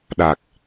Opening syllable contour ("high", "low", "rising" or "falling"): low